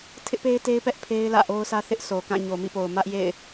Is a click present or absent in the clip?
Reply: absent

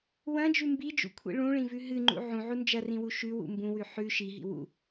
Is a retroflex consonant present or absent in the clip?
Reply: present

